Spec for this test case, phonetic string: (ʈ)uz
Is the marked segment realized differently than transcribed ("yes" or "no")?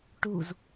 no